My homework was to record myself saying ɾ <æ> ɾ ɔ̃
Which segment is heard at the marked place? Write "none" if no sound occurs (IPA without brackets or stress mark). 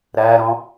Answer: æ